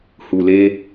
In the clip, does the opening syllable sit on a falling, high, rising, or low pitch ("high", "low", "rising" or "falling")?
low